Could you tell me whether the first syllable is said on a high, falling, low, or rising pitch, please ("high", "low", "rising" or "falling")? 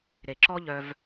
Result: low